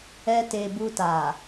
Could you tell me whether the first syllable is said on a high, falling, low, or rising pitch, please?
high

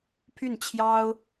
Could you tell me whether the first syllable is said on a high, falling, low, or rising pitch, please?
falling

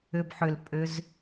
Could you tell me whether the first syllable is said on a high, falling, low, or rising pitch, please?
low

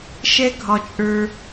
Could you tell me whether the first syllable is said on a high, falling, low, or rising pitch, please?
high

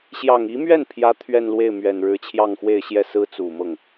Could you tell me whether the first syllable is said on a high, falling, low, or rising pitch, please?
low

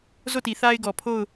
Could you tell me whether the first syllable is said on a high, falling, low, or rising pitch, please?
falling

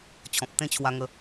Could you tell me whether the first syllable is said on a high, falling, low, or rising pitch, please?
low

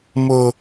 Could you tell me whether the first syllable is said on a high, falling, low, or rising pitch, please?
low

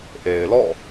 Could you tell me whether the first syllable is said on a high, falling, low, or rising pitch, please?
low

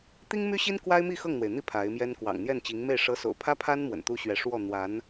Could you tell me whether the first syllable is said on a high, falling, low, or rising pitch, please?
high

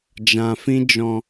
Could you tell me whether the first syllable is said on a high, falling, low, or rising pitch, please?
low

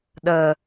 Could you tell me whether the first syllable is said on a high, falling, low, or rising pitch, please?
low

